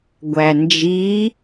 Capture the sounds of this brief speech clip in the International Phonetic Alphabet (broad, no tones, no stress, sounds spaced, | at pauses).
ɡʷ æ n d͡ʒ i